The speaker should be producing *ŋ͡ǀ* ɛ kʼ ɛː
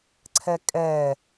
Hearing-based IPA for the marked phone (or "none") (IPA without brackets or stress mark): ǀʰ